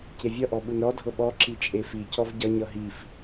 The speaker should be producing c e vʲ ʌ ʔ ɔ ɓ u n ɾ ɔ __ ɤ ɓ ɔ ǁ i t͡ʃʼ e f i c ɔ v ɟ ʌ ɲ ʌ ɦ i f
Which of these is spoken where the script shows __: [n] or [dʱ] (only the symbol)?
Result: dʱ